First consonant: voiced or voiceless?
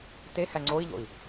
voiceless